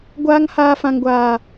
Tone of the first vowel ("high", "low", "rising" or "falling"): high